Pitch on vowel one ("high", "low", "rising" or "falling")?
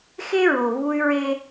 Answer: high